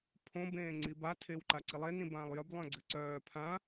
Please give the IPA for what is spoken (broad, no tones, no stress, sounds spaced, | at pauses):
pʰ õ b ẽː ŋ͡ǀ i b a tʰ eː w ǃ a ǀ i lˠ e n ĩ b ãː lˠ j œ b lˠ œ̃ ɡ͡ǀ ɘ ǀ œː pʰ ã